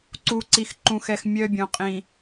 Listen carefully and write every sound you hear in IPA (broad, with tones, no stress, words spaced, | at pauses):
ǀu˨ǀi˨x ǃũ˨xɛ˨x mʲœ˨ bʲõ˨qʼĩ˨